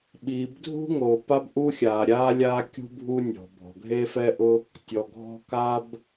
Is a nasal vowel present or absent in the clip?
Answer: absent